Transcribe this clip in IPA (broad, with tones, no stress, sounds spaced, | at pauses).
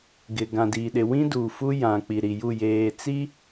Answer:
ɡ ɪ˨ ɡ ã˨ d iː˨ ɗ ɪ˨ w ĩ˦ d uː˨ f u˦ j ã˨ k͡p i˨ ɾ i˨ j u˦˨ j eː˨ t͡s i˦